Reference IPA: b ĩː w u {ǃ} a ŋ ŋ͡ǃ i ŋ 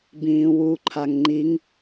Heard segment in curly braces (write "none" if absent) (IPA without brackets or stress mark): ǃʰ